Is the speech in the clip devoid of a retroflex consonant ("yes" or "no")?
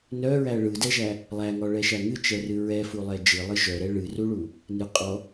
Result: no